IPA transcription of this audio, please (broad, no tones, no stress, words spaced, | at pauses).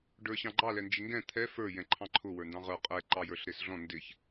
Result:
ɖə˞ɕɑ̃ɡ͡ǃɑ lɛnd͡ʒɪŋɡɛ̃ t̪ʰɛ fə˞ jɛ̃ǃʰɑ̃ǃʰʊ wə˞ndɑ̃ʁə˞ qʼɛ ǃɑjə˞ɬɾɪsɮɔ̃ ndɪç